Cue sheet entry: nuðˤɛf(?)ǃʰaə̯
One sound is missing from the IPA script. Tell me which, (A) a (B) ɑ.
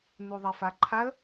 A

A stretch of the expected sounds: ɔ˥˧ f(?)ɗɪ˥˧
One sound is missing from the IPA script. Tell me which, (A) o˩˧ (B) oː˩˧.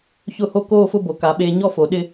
A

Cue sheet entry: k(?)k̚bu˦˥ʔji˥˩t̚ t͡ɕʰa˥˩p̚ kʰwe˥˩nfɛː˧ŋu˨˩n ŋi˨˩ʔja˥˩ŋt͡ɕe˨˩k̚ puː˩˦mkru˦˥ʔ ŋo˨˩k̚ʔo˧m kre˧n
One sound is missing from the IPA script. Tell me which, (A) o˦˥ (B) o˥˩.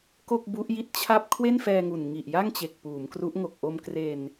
B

